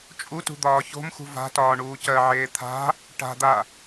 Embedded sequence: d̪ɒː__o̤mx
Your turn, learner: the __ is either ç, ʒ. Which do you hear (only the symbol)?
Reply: ç